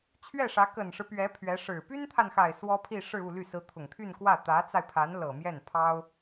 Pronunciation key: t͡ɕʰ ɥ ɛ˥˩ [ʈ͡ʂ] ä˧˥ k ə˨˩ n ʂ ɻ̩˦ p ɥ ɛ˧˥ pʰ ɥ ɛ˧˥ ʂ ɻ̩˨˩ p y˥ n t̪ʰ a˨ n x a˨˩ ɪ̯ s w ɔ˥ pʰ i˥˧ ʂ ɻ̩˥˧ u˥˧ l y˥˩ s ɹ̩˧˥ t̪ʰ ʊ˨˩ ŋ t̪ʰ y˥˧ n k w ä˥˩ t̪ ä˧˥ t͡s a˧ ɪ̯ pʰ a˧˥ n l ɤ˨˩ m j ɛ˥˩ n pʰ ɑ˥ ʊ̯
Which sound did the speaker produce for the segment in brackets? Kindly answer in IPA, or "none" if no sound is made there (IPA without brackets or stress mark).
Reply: ʂ